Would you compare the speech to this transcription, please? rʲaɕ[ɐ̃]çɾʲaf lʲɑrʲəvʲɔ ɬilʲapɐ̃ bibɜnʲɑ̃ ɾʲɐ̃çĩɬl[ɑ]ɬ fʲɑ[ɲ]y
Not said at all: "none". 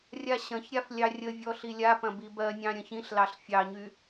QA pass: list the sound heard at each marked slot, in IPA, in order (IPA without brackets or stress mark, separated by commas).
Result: ɐ̃, ɑ, ɲ